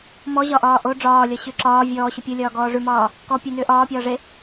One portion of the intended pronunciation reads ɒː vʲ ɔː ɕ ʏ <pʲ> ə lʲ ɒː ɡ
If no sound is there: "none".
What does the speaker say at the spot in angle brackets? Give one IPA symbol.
pʲ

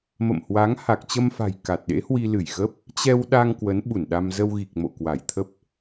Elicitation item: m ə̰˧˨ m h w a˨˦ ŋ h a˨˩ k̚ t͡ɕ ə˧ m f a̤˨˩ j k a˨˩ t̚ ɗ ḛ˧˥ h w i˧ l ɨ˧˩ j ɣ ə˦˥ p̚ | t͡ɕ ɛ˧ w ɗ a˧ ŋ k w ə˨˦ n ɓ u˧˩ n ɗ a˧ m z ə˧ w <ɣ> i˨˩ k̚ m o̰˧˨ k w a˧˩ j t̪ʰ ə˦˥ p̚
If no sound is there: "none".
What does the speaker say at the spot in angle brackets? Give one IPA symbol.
ɣ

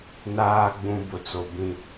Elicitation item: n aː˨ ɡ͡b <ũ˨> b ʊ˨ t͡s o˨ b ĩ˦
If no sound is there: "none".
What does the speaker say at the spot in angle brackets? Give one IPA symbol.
ũ˨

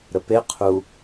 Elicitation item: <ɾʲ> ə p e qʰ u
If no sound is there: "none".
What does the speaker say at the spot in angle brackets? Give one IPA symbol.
ɾ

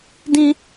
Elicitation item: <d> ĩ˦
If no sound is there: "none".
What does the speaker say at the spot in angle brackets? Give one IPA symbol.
d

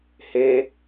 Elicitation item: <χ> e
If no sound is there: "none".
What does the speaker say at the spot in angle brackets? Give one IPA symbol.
h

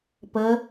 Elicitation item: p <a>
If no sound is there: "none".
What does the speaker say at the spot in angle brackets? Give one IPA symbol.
ə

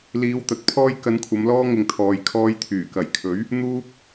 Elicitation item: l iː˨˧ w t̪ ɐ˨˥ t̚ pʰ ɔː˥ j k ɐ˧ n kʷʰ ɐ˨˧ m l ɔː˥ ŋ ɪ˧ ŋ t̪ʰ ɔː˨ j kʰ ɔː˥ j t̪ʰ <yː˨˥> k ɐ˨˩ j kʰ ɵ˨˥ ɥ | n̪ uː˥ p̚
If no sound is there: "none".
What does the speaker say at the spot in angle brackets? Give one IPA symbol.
yː˨˩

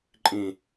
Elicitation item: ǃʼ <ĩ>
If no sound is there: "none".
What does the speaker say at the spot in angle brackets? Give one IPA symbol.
ĩ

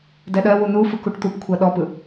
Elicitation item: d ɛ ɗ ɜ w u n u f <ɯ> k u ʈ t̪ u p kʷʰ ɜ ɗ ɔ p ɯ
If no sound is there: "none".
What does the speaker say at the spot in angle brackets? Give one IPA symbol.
ɯ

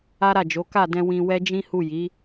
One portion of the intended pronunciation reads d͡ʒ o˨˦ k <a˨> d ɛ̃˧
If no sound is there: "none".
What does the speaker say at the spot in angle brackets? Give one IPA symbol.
a˦˨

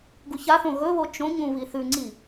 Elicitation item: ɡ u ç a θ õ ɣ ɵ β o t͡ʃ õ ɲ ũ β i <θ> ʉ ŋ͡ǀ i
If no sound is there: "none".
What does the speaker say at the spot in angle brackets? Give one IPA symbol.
θ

